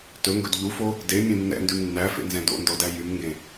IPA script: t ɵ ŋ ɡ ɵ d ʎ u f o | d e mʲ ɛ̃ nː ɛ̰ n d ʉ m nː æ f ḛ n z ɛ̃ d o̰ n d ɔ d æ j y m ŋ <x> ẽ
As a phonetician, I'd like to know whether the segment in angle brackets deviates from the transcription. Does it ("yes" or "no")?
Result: yes